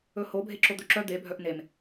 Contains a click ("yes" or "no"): yes